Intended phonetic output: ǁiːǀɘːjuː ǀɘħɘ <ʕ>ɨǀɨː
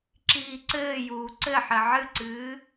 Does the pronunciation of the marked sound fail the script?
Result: no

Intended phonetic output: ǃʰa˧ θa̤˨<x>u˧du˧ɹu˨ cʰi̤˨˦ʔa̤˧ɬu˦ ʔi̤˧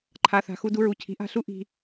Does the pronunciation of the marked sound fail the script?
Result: no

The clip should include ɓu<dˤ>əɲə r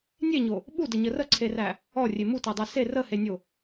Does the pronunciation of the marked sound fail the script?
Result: yes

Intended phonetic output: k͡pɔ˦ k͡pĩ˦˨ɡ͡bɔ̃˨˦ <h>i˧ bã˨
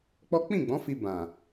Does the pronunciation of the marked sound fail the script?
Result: yes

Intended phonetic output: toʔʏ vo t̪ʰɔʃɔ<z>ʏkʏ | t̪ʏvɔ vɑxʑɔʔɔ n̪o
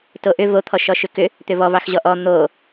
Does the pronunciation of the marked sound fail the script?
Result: yes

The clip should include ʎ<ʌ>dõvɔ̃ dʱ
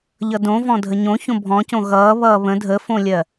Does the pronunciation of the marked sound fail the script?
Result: no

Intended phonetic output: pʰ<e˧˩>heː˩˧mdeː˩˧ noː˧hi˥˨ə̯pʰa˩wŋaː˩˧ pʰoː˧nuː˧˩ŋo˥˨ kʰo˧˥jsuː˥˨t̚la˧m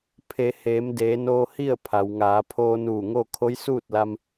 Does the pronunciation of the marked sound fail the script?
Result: yes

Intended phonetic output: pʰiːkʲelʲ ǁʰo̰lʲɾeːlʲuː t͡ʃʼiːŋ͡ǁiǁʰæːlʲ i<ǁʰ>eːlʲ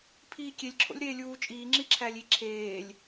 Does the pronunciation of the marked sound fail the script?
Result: no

